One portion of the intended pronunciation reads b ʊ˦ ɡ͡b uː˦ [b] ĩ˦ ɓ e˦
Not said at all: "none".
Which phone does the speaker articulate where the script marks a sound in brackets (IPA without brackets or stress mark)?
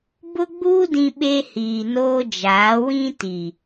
d